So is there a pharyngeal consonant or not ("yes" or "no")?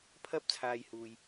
no